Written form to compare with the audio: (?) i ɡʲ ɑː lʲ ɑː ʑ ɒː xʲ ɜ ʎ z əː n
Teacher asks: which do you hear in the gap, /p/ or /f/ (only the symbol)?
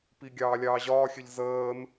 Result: p